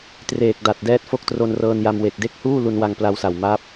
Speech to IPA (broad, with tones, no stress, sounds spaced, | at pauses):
t r eː˨˩ k̚ d a˨˩ t̚ d ɛː˦˥ t̚ f o˦˥ k̚ t r o˧ n r ɤː˧ n j a˧ m w e˨˩ k̚ d e˥˩ k̚ h uː˥˩ l u˧ n w a˧ ŋ p l a˧ w s a˨˩ w m a˦˥ p̚